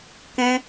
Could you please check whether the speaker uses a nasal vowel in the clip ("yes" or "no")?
yes